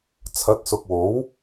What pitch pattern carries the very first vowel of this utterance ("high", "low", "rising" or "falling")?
rising